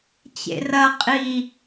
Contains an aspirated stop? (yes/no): no